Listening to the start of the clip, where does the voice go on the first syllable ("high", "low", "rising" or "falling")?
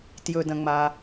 low